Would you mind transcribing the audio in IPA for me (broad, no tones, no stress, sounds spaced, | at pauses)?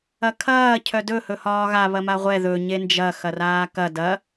ɐ kʰ ɐː cʰ œ d ɵ h ɵ h ɒː ɣ a β ɐ m a ʁʷ ɛ ð ɵ ɲ e n d͡ʒ ɐ x ɐ r aː k ɐ d ɐ